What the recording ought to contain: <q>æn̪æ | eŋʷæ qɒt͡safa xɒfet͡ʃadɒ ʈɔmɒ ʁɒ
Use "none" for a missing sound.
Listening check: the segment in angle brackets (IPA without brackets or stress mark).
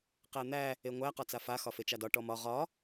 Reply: q